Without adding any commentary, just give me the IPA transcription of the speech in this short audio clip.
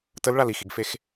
t ə l ɭ a l i x i ɡ f e x

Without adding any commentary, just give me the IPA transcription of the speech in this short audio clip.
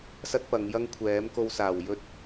s ɐ˥ t̚ p ɐ˨˧ ŋ j ɐ˥ ŋ kʷʰ ɛː˨˥ m k o˧ w s aː˨˩ w j ɵ˥ t̚

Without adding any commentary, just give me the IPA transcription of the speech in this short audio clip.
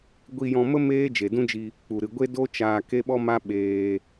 ɡʷ i˧ j ɔ̃˧ m ə˦ m eː˦ d͡ʒ e˨ d ũ˦ d͡ʒ i˧ | k͡p u˨ ɾ ɨ˨ ɡʷ e˦ d o˦ t͡ʃ aː˧ k e˦ ɓ ɔ˦ m a˦ ɓ eː˧

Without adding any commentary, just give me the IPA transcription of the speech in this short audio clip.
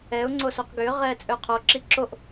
ɛ ʊ̯ ŋ͡ǀ o s o q ɡ ʏː ʁ ɛː t͡sʼ ø qʰ o ǁ i ǁ o ʔ

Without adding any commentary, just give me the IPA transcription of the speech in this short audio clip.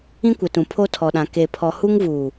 ĩ˦ kʷ ɪ˨ t ũ˨ pʰ o˦ tʰ ɔ˨ ɗ ã˨ k e˨ pʰ ɔ˨ h u˦ ŋ v uː˨

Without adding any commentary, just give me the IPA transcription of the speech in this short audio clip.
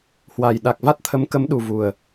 h w a˨˩ j ɗ a˨˩ k̚ v a˦˥ t̚ t̪ʰ ə˨˦ m k ə˨˦ m ɗ u˨˩ v u˨˩ ə̯

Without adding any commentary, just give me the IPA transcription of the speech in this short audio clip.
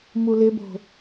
m u l ɪ b o̤

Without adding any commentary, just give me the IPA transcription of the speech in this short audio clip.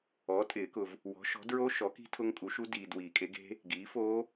ɔ˩˥ tʼ ɪː˨˩˦ k ʊ˨ v | w ɔ̤˩˥ ʃ ɔ̤˩˥ d ɹ o˦˥ ʃ ɔ˩˥ k i̤˦˥ tʰ ʊ˦˥ ŋ kʼ u˩˥ ʃ u˦˥ d iː˨ d w iː˨˩˦ kʼ e˩˥ ɡ e̤˦˥ | ɡ iː˩˥ f oː˦˥

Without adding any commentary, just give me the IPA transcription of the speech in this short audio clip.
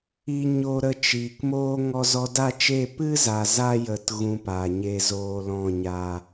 i˧ ɲ o˧ ɾ ə˧ t͡ʃ iː˨ k m oː˦ ŋ ɔ˧ z ɔ˧ d a˦˨ t͡ʃ eː˦˨ p ɨ˦ z a˨ z a˧ j ə˨ t ɣ ũ˧ p a˨ ɲ e˧ z oː˧ l ɔ̃˦˨ ɲ aː˧

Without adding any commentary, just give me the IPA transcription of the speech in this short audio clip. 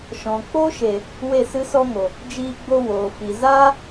ʃ ɔ̃˨ k͡p o˦ ʃ e˨ | w e˦˨ s ɨ˦ s ɔ˦ ŋ o˨ | d͡ʒ iː˧ ɡ͡b o˧ w oː˨ f i˨ z aː˦

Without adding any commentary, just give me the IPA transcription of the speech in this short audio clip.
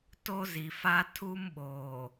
t o˦ z i˨ f a˦ tʰ u˦ m ɓ oː˨

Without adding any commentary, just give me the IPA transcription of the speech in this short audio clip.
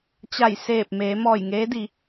t͡ɕ a˧˩ j s eː˧˩ p̚ m eː˩˧ m ɔː˧˩ j ŋ eː˧˥ d i˩˧

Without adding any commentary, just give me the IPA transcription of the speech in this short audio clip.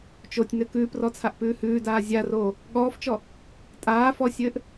t͡ʃ o tʲ n ɘ k ʉː p r ɔ t͡sʰ a ʔ p ʉː h ʉː d aː zʲ a r oː | ɠ ɔː f t͡ʃ ɔ | tʼ aː f ɔ sʲ ɘː ʔ

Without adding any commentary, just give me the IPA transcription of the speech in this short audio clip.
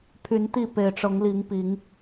pʰ y˨˦ n t̪ i˥˨ p e˨˩ ɪ̯ ʈ͡ʂ ɤ˨˦ ŋ l i˨˦ ŋ p i˨˦ ŋ

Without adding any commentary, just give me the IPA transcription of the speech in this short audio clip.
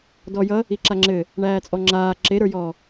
d ɔ j ʌ | i ǁ a ŋ͡ǁ ɘ | ɳ æː t͡sʼ ɔ ŋ͡ǁ aː ǁ e ɾ ə˞ j ɔ

